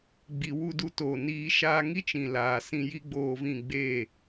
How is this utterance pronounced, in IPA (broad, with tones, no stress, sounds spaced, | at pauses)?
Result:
ɡ͡b i˨ w u˦˨ d u˧ t oː˨ n iː˧ ʃ aː˧ ŋ i˦ t͡ʃ ĩ˨ l aː˨ s ĩ˧ j i˦ ɡ͡b oː˧ v ĩ˦˨ ɡ͡b eː˦˨